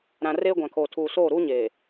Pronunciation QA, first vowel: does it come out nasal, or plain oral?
nasal